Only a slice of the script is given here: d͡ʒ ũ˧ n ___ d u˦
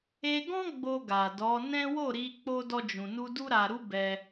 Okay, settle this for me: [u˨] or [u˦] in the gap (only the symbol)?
u˦